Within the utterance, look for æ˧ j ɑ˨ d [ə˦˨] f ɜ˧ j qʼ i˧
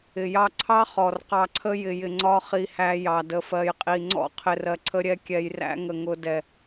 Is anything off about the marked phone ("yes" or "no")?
yes